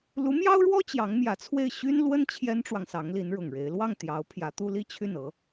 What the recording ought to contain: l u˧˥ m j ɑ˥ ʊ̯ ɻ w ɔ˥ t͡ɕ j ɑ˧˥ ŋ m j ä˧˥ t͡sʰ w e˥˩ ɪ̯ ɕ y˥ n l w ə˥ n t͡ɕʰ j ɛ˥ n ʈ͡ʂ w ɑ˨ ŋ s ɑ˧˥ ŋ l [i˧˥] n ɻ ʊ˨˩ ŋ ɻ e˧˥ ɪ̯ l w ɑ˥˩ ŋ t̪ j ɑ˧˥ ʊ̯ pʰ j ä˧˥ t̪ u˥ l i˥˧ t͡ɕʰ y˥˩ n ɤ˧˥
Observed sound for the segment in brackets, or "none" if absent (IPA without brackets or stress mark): i˧˥